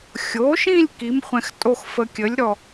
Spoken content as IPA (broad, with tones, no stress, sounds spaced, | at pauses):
xʲ o˩˥ ʃ ĩ˥˧ lʲ k i˩˥ m χʷ ɛ̃˧ x tʼ o˥˧ x f ə˧ kʲ ə˩˥ lʲ ɾ ɔ˧˩